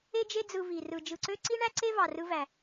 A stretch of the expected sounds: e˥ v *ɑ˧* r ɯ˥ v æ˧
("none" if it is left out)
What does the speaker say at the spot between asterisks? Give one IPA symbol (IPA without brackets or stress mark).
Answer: ɑ˧